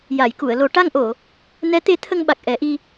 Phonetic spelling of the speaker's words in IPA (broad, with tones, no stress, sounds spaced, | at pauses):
j a˨˩˨ j k u˨˩˨ ə̯ l o˨˩˦ ʈ a˧ ŋ ʔ o˨˩˨ | n ɛ˧˥ t̪ e˧˥ t̪ʰ ə˧ ŋ ɓ a˨˩ k̚ ʔ ɛ˨˩˦ ʔ i˧